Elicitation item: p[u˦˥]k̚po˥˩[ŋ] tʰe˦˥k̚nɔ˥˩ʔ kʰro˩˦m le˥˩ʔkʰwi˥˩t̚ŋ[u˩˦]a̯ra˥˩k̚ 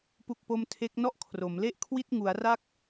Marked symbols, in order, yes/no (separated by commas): no, no, yes